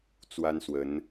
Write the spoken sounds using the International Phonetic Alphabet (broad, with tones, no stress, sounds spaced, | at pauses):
t͡s w a˦ n s w ə˨˦ n